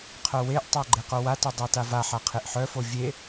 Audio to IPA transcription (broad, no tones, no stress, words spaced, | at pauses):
qʰœweʔtˤa ɡ͡ǃeqowatœ dˤatavaħa qʰeʔħœfo vʲe